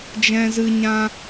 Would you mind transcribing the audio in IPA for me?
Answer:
d͡ʒ ɛ̃˦ z ɨ˦ ɲ ã˦

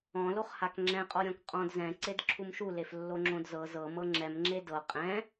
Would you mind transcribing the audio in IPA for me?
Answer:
ɔ̃ l o χ h a k ŋ͡ǁ ɛ̃ qʼ ɔ ɾʲ ɔ̃ k qʼ ɔ̃ d z ɛ̃ ǀ e d ǁʰ u m ʃ u l e f lː o ŋ͡ǁ õ d z ɤ z ɤ m ɤ ŋ͡ǁ ɛ m ŋ͡ǁ e d ɤ qʼ ɛ̃

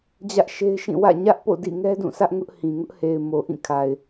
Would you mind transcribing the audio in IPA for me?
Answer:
d͡ʑ ä˦ ʔ ʃ e˦ ɪ̯ ʃ ĩ˦˨ w ä̰˦˨ ɲ ä˦ ʔ p o̰˦˨ d ḭ˦˨ ŋ ɛ˦ d ũ˦˨ sʰ ä˦ ʔ ŋ ʊ˦ ʔ h ĩ˨ ŋ ʊ˦ ʔ h e˨ ɪ̯ m o˨ ʔ ĩ˦˨ kʰ a˨ ɪ̯

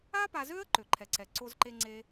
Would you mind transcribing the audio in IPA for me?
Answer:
a˥ p a˧ z ø˥ ə̯ ǃ ø˧ ǃʰ ɛ˧ ǀ ɛ˧ ǀ o˥ z ǃ e˥ ŋ͡ǀ e˥

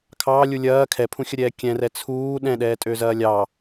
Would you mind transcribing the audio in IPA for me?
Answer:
kʰ ɑː lʲ u lʲ ɐː kʰ ɛ pʰ ũ xʲ ɐ ɾʲ ɛː kʲ ɛ̃ r ɛ t͡sʰ uː ɗ ɛ̃ ɗ ɛː tʼ ø z ɐː lʲ ɑ

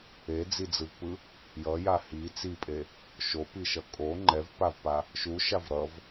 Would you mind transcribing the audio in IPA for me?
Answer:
e d͡z i d͡z ɯ v p ɯ | j ʌ j a h i t͡s i pʼ e | ʃ o p i ʃ ʌ kʼ o ŋ͡ǃ ɛ v p a v p a | ʃ u ʃ a v ɾ ʌ v

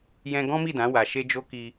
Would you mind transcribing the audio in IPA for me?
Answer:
j ɛ̃˦ ɡ ɔ̃˦ m i˦˨ d ã˨˦ w a˧ ʃ e˦ d͡ʒ o˦ k i˧

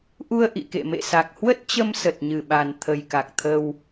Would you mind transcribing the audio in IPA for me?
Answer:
ʔ u˧ ə̯ ʔ ḭ˧˨ k ḛ˧˨ m ḛ˧˨ s a˨˩ k̚ h w ə˦˥ t̚ t͡ɕ ə˧ m s ə˨˩ t̚ ɲ ɨ˧˩ ɓ a˨˩ n t̪ʰ ə˨˩ j k a˨˩ k̚ t̪ʰ ə˧ w

